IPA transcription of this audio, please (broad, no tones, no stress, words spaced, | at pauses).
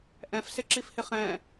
ʔɛ̃fsɪǁifhɪ χɛ̃